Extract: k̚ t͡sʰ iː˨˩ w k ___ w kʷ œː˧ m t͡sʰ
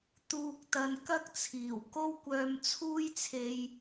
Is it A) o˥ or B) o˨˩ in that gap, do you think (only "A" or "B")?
A